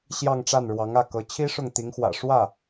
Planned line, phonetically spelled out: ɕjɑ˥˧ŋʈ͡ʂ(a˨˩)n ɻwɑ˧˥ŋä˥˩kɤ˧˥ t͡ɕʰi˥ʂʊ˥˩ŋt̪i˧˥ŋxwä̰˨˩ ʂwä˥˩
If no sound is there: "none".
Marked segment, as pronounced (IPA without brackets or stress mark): a˥˩